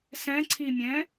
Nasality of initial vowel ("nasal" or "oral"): nasal